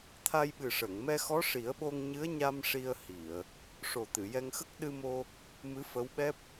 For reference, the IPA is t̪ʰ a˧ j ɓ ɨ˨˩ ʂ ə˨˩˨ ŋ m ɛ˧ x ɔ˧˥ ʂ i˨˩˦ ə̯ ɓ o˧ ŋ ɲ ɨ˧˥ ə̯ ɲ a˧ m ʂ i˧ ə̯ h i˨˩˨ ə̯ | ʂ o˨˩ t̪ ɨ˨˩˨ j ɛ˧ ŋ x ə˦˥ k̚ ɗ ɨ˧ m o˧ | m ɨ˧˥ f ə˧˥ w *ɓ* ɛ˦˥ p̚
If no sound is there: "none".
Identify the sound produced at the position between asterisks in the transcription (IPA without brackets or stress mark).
ɓ